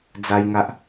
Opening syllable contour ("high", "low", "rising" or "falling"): high